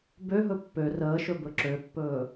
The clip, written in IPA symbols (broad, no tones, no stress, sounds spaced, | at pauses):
b ø ɦ ɵ pː ø r əː ʃ ɵ b ɵ ǁ ø pː ɵː